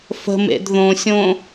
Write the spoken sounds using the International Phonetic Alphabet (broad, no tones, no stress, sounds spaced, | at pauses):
f ə̤ m ḛ d ð õ sʲ õ